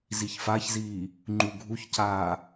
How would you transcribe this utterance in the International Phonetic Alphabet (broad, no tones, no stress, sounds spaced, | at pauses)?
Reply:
z i ç f a ç z iː | ŋ͡ǃ u ɡʱ u ç c aː